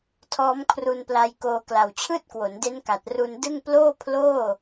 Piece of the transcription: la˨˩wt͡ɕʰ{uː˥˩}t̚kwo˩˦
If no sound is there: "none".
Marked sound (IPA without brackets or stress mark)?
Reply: ɯː˥˩